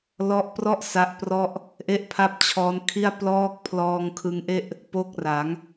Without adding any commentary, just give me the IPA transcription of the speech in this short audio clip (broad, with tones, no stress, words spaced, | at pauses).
lɔ˦˥ʔprɔ˥˩ʔ sa˦˥ʔprɔ˥˩ʔ | ʔe˥˩ʔpʰa˥˩p̚t͡ɕʰɔː˦˥nkʰi˥˩a̯ plɔː˦˥k̚ pʰlɔː˧ŋkʰɯ˧ŋʔe˥˩ʔ | po˦˥k̚ra˩˦ŋ